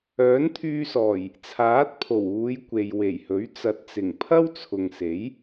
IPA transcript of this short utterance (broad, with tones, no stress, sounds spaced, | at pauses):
œː˨˥ n t̪ʰ yː˧ s ɔː˨˩ j | t͡sʰ aː˨˥ t̚ pʰ o˨˩ w uː˨˧ j kʷ e˨ j w e˨˩ j h ɵ˨˥ ɥ t͡s ɐ˨ t̚ t͡s ɪ˨˩ ŋ pʰ ɐ˥ w t͡sʰ ʊ˨ ŋ s e˨˥ j